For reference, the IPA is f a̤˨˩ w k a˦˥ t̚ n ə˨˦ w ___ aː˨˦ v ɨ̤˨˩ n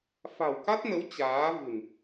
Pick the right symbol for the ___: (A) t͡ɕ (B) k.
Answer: A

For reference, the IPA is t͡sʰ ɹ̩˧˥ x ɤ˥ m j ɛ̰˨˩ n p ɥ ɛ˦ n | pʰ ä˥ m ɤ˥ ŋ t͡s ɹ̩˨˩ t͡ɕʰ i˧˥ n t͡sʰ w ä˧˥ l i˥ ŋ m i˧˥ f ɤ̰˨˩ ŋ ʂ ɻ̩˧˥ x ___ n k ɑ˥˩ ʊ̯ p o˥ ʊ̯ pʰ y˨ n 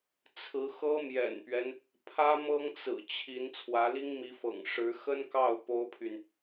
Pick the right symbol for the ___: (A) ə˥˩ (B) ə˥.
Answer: B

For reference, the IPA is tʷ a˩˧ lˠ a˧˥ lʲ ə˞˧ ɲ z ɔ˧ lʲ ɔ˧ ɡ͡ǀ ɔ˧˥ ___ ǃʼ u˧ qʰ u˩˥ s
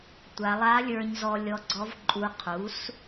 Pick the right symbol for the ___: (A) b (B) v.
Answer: B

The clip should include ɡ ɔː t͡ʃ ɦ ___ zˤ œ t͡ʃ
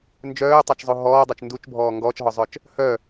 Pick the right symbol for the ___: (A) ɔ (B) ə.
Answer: A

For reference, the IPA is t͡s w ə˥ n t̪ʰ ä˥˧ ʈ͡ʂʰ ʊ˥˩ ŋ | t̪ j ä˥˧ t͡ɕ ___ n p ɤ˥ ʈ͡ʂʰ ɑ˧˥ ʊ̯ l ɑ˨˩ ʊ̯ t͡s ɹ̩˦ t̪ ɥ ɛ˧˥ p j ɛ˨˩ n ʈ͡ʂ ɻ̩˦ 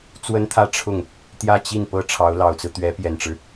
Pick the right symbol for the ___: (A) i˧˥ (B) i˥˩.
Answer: B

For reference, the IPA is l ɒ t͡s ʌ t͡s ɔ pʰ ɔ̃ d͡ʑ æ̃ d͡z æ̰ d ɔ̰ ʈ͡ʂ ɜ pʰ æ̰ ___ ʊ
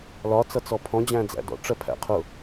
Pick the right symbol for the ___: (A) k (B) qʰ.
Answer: B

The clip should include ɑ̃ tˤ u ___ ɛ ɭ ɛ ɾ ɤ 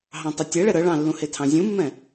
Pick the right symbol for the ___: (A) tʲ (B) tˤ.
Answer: A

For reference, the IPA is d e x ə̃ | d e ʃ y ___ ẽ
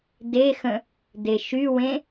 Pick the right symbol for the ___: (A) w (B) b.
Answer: A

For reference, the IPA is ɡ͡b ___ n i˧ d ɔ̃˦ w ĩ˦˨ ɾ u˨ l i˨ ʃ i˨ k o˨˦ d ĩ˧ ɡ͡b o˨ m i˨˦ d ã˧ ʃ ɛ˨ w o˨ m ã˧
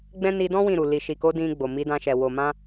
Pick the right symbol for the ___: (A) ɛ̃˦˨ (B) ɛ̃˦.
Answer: B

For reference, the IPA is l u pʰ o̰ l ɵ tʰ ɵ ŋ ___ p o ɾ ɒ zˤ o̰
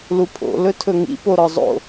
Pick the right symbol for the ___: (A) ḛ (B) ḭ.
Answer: B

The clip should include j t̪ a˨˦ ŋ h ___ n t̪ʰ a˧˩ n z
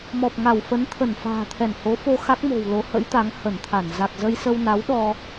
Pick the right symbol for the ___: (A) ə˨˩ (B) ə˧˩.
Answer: B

